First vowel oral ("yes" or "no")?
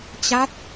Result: yes